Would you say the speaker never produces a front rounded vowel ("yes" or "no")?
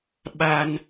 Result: yes